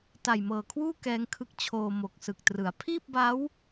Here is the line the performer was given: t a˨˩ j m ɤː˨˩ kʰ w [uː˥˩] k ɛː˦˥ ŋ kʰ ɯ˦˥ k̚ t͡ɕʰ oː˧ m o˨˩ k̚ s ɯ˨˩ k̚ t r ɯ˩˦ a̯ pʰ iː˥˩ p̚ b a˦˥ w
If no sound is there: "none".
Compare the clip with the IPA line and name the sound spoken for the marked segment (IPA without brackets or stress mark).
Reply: uː˥˩